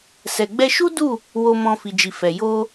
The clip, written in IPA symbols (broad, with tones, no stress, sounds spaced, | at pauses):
s ɛ˨ ɡ͡b ɛ˧ ʃ u˦ d u˦˨ | w o˧ m ɔ̃˧ f i˨ d͡ʒ i˨ f ɛ˨ j o˧